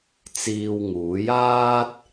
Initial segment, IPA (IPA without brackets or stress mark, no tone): t͡s